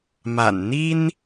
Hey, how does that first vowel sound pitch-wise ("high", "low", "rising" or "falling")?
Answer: low